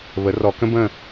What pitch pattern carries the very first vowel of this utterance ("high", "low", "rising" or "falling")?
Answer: rising